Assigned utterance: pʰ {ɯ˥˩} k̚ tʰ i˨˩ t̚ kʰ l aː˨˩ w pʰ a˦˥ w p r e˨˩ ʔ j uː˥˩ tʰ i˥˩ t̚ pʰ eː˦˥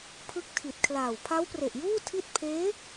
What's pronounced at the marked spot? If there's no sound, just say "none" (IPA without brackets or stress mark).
ɯ˥˩